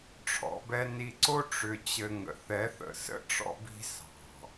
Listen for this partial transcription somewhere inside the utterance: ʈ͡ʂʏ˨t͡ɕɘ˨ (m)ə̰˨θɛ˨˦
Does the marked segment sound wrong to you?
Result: yes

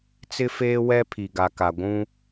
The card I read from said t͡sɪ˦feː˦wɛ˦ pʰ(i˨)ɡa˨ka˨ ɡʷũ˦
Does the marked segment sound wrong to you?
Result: no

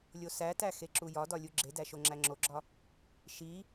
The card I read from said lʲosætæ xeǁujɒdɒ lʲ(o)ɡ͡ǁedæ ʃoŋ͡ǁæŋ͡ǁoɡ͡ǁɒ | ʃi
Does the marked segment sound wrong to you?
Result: yes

